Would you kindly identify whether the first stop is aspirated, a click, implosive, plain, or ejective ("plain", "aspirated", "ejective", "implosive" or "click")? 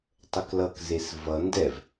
plain